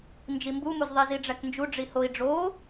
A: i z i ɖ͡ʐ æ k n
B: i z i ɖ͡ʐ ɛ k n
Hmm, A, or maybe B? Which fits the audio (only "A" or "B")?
A